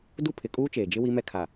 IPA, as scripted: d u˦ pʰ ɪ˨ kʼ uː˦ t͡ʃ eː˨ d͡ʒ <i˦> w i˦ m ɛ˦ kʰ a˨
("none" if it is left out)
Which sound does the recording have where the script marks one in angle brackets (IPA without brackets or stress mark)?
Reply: ɪ˦